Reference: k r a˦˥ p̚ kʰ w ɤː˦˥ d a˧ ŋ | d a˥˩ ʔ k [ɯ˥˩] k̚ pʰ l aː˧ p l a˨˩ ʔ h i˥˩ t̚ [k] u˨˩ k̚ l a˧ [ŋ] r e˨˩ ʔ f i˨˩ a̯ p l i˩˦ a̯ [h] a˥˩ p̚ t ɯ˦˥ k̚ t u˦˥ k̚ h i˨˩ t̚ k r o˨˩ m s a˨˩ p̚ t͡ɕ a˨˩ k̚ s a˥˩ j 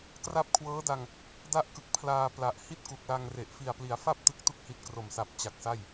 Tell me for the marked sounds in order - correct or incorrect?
incorrect, correct, correct, incorrect

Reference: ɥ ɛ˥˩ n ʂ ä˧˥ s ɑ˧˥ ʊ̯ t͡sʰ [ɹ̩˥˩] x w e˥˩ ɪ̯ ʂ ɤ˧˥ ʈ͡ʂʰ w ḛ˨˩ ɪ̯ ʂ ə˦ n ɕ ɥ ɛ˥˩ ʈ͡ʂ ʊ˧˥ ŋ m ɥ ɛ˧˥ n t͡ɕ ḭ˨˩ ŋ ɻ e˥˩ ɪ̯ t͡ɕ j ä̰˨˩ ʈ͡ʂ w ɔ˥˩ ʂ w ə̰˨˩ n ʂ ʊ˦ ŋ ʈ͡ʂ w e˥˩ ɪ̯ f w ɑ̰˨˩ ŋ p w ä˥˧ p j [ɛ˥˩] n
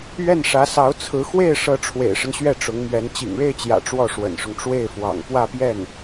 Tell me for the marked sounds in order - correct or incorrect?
incorrect, correct

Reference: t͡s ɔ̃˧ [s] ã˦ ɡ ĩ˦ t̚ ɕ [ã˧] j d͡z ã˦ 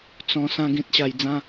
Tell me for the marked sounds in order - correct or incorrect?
correct, incorrect

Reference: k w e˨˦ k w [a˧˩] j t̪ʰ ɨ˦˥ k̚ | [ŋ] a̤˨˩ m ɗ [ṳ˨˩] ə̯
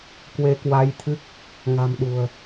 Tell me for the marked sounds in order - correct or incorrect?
incorrect, correct, correct

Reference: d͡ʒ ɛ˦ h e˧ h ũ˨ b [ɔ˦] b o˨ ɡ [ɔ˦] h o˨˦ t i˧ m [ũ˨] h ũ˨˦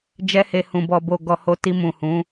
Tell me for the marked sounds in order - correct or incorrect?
incorrect, incorrect, correct

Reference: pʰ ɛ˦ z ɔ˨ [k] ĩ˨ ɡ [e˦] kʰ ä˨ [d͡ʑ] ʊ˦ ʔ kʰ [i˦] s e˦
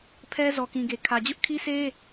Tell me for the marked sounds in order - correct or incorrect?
correct, incorrect, correct, correct

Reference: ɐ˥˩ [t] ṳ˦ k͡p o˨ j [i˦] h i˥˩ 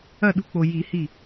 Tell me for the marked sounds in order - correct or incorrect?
incorrect, incorrect

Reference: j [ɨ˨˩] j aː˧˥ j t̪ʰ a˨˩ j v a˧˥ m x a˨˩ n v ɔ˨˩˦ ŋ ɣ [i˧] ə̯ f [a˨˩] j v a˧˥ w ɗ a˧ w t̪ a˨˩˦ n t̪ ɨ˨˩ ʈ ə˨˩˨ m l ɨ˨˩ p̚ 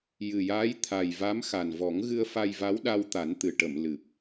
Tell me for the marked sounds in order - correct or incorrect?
correct, incorrect, incorrect

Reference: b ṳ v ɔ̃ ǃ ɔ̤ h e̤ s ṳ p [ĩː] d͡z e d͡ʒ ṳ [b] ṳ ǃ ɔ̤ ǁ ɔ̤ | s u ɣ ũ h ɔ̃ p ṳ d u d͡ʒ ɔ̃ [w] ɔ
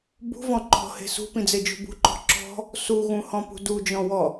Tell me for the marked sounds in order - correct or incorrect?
incorrect, correct, correct

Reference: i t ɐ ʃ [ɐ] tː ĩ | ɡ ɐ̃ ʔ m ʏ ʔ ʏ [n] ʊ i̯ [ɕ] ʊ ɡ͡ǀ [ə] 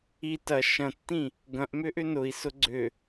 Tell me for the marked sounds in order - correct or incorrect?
incorrect, correct, incorrect, incorrect

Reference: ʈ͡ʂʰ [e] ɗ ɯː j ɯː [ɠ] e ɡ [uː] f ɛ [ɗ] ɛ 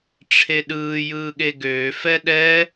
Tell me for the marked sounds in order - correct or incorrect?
correct, correct, incorrect, correct

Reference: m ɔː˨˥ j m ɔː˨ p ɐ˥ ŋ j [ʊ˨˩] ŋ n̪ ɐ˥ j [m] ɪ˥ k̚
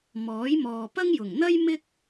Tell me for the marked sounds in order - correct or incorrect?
correct, correct

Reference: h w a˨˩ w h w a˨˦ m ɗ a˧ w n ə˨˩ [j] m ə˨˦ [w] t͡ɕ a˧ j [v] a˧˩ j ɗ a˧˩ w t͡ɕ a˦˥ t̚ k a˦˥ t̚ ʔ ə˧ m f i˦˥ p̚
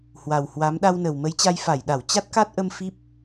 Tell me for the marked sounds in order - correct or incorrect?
incorrect, incorrect, incorrect

